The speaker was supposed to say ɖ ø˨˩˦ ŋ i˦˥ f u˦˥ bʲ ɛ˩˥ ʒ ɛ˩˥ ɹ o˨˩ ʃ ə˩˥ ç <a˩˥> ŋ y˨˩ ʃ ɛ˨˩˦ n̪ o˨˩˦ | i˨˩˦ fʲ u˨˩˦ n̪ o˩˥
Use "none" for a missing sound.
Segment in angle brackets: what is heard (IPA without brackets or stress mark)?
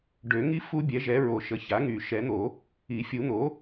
a˩˥